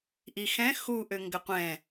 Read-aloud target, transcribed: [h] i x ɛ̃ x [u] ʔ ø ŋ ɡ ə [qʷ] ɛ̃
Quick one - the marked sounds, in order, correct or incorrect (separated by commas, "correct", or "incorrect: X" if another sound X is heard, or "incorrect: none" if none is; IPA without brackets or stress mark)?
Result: incorrect: ʔ, correct, correct